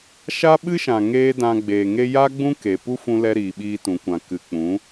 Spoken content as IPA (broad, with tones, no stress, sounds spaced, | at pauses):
ʃ a˦ ɓ ɨ˦ ʃ ã˨ ŋ eː˦ d ã˧ ɡ͡b eː˨ ŋ e˦ j a˦ ɡ͡b ũ˦ k e˨ p u˦ f ũ˧ l ɛ˧ ɾ iː˨ ɓ iː˧ t ũ˨ kʷ ã˨ k ɨ˨ k͡p ũ˨˦